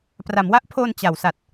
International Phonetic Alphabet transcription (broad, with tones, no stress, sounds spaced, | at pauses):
p r a˩˦ m w a˦˥ ʔ pʰ oː˧ n t͡ɕ a˩˦ w s a˨˩ t̚